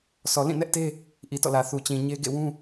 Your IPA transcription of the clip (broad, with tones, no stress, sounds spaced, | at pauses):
sʰ ɔ˨ l ĩ˦˨ n ɛ˦ ʔ t e˦ | ʔ i˨ t ɔ̰˦˨ l ä˨ θ u˨ t͡ɕ ĩ˨ ɲ e˦ ɡ ḛ˦˨ w ũ˦